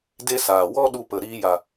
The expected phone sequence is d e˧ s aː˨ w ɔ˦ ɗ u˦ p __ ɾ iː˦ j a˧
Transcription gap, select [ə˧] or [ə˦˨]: ə˦˨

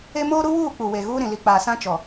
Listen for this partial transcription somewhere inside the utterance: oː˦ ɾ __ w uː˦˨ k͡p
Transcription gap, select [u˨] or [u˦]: u˦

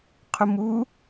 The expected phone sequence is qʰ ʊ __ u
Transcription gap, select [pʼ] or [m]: m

